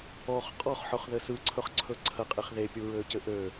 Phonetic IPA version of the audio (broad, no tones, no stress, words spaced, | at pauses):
ɔχ qʼɔχħɵχðɘ sɯǀʰɵχǀʰɵ ǀʰəqʼeχ ðepʲuɹøcɘ ʔø